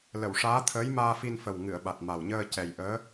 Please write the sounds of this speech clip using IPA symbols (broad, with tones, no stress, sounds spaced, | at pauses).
l ə˨˩˨ w ʂ aː˧˥ t̪ʰ əː˧˥ j m aː˧ f i˧ n f ə˨˩ w ŋ ɨ˨˩˨ ə̯ ɓ a˨˩ t̚ m a˨˩ w ɲ əː˧ c ɛ˨˩ j ʔ əː˧˥